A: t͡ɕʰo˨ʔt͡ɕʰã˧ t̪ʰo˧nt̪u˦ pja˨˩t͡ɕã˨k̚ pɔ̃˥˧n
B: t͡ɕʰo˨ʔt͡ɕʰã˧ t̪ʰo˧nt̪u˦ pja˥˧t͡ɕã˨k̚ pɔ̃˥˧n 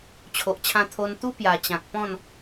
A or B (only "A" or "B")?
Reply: A